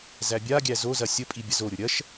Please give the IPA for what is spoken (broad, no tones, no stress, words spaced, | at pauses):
zæbʲaɡʲæ zozɐ sʲəpʼi bʲɐzoɾʲʊ ɾʲɐʃ